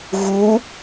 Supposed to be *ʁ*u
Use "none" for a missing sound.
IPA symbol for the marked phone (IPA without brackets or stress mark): ɣ